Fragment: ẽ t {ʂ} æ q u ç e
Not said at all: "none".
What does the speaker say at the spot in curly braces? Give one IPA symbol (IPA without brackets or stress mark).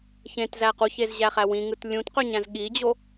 z